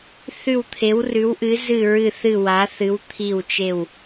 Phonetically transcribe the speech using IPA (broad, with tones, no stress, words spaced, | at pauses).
θʉ˧˩wt̪ʰe˩˧wrʉ˩˧wʔɨ˩˧ zɨ˧˩ɹɨ˧˩θɨ˧˩ wa˩˧θɨ˩˧w t̪ʰi˧˩wt͡ʃe˧˩w